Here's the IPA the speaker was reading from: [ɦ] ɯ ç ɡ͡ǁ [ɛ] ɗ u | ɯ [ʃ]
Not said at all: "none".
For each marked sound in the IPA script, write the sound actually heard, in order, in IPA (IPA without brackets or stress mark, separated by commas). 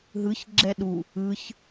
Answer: ɦ, ɛ, ç